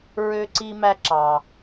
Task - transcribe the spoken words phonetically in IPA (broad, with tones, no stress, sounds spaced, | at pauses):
ɹ ø˧ ǀ i˧ m æ˧ ǁ ɑ˩